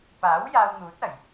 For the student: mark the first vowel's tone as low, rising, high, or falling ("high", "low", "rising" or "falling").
rising